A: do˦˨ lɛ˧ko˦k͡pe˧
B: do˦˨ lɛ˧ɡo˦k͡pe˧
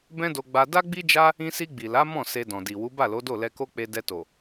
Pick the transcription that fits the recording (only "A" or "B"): A